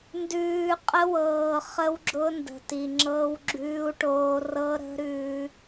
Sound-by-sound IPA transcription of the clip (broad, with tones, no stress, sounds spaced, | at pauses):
n d ʉː˨ qʼ ə˦ w ɤː˨ χ ə˦ w ɡ͡ǁ ʊ˦ n d ə̤˨ t i˨ ŋ͡ǁ ɤ˦ w ɡ͡ǁ ʉː˦ u̯ ʈ oː˦ r ɤ˦ ɾ ə̤˦ ɾ ʉ˦